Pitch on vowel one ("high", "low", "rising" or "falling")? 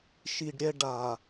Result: low